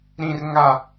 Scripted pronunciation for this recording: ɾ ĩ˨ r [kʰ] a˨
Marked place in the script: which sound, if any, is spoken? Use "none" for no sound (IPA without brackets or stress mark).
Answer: ŋ